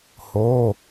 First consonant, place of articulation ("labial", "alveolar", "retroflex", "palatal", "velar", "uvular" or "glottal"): glottal